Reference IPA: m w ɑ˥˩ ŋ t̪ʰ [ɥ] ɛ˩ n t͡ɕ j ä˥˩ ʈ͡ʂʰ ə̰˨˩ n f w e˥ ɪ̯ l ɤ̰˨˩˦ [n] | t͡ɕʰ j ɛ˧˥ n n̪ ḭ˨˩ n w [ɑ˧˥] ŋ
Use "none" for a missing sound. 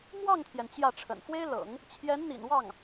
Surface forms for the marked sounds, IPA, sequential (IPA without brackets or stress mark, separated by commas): j, ŋ, ɑ˥˩